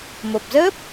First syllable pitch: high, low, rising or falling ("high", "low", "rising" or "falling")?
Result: low